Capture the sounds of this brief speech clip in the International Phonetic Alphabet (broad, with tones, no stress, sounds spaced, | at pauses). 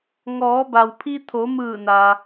ŋ ɔː˩˧ b a˩ w pʰ i˧ t̪ʰ o˩˧ m ɯː˧˩ n a˩